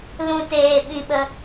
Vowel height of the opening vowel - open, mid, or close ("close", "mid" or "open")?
close